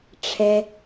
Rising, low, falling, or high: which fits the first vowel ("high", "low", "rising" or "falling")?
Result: low